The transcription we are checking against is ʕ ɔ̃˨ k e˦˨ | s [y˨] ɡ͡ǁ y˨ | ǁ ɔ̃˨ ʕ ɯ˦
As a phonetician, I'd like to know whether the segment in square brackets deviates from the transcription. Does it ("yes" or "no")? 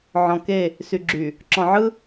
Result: no